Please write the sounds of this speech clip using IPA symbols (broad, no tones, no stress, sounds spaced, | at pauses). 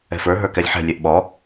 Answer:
ɛ̤ f ə˞ ɦ ə˞ k ɛ lʲ ħ ɛ̤ lʲ ɛ ʔ ɓ ɔ